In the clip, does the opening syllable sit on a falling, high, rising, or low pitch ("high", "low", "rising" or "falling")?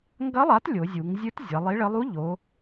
rising